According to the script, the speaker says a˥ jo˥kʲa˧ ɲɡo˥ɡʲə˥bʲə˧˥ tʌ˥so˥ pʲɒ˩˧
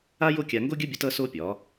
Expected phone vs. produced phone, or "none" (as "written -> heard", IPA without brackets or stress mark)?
ɲ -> ŋ